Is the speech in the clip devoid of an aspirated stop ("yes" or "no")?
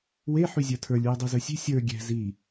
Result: no